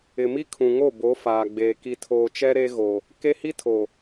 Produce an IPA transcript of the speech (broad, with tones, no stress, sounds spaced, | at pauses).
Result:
ɪ˨ m i˦ kʰ ũ˨ ŋ o˦˨ b o˨˦ f aː˨ ɡ͡b eː˨ k i˨ tʰ oː˨ t͡ʃ ɛ˦ ɾ e˦ ɣ o˨ | k e˦ h i˦ tʰ o˨